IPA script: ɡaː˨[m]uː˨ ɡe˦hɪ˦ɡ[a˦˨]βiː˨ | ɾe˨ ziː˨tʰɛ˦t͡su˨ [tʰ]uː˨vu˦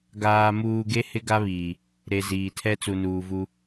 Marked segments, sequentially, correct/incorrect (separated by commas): correct, incorrect, incorrect